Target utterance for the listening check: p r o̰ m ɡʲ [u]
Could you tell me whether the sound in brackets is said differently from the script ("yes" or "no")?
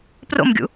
yes